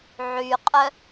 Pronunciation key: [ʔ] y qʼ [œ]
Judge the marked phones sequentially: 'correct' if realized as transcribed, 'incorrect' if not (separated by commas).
incorrect, correct